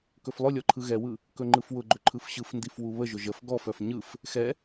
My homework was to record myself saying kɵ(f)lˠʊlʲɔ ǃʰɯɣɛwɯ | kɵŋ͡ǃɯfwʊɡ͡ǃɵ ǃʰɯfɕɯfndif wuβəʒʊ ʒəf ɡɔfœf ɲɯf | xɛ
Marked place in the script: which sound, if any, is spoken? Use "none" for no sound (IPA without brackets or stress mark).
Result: f